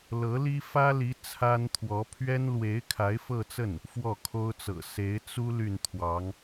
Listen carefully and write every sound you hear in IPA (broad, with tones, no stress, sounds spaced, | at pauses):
l ɤ˧˥ l i˥ f ä˥ l i˧˥ t͡sʰ a˥ n t̪ʰ w ɔ˧˥ pʰ ɥ ɛ˥ n l w e˧˥ ɪ̯ kʰ a˧˥ ɪ̯ f ɤ˥˧ t͡s ə˥˩ n | f w ɔ˥˩ kʰ o˥ ʊ̯ t͡s ɤ̰˨˩ s e˧˥ ɪ̯ t͡s u˥ l y˥˩ n t̪ʰ w ɑ˧˥ ŋ